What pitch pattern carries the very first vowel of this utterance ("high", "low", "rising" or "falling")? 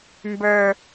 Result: low